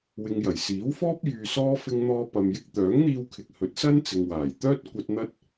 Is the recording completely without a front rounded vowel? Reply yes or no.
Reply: no